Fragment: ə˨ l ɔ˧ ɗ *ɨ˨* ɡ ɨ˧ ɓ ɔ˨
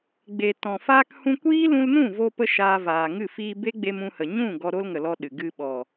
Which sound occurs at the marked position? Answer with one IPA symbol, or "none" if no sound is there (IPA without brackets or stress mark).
ɨ˨